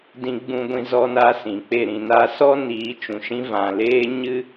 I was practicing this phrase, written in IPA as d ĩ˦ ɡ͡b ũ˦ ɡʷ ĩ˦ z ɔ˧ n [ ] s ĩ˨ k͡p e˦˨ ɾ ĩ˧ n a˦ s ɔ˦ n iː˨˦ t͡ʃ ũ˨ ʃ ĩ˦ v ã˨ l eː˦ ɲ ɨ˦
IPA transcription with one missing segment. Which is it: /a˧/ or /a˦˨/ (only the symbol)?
a˧